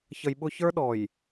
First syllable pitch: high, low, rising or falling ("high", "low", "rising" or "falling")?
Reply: low